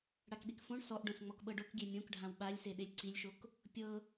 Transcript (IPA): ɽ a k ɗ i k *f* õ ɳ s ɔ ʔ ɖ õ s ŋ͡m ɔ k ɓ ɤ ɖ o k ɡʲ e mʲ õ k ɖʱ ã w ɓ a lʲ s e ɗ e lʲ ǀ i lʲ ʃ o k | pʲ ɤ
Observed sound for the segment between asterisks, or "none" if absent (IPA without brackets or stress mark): f